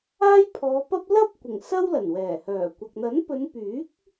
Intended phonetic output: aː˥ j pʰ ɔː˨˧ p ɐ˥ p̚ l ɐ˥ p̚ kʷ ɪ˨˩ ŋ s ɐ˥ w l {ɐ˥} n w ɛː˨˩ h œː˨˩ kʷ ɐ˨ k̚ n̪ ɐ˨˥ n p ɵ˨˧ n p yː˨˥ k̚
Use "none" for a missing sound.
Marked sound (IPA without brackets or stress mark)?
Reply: ɐ˨˩